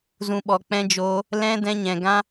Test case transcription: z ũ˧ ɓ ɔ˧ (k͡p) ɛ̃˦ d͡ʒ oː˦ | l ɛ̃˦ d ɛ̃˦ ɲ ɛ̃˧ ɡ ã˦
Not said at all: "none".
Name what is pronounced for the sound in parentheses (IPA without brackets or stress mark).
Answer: k͡p